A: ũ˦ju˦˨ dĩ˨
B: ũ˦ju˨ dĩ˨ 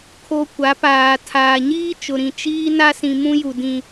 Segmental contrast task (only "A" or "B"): B